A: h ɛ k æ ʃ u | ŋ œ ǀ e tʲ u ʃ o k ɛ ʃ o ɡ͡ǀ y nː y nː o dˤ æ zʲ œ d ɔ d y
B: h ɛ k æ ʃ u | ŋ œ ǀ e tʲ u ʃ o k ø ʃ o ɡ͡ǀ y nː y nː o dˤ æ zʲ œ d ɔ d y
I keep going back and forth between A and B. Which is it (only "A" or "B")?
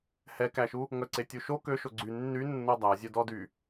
B